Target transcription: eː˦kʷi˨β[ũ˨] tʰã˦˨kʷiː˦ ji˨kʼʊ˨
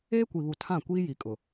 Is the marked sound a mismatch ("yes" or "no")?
yes